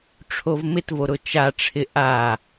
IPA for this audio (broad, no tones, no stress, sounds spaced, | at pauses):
ʈ͡ʂʰ o v m ɪ t v o ɾ ʊ t͡ʃ a ʈ͡ʂʰ ɪ ʔ a